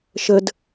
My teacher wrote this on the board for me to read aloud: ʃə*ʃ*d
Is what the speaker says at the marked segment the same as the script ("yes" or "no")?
no